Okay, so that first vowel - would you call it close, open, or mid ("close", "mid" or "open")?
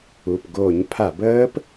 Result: close